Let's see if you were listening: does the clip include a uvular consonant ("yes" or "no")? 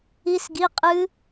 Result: yes